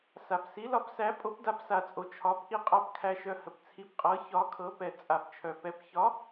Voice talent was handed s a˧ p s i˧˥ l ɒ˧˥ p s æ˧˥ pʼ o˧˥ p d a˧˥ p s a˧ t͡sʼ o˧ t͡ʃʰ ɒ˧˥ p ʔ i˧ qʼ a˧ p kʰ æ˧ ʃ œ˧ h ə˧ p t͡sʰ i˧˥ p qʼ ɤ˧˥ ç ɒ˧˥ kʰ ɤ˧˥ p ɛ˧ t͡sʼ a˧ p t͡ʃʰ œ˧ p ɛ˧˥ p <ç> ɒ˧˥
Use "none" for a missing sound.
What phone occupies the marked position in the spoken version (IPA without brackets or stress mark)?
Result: ç